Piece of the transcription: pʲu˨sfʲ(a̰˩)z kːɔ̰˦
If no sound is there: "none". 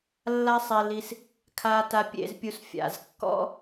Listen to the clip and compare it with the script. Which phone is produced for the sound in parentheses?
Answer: a̰˩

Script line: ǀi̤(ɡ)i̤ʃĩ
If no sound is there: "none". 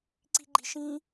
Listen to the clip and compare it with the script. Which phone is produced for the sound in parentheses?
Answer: ɡ͡ǃ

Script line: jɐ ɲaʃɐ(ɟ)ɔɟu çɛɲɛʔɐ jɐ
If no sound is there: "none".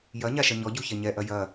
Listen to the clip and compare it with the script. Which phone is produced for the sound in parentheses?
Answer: ɲ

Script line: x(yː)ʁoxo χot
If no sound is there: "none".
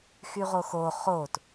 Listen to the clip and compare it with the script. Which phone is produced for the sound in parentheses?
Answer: y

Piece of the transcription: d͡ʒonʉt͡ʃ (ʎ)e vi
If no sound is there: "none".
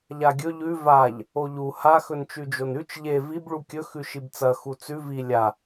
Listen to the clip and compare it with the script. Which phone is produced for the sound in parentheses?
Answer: ʎ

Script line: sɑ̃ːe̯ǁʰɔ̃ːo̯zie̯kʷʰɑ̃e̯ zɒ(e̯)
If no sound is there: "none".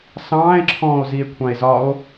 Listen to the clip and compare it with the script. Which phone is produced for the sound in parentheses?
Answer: o̯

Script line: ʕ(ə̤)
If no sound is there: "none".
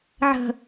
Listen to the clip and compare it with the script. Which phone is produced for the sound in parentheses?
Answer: ə̤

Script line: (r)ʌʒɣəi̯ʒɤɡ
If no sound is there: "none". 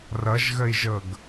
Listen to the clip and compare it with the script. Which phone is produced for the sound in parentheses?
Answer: r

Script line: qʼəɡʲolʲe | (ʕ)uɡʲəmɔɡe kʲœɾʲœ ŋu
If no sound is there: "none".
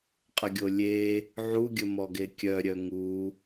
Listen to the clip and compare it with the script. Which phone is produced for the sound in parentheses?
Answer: ʕ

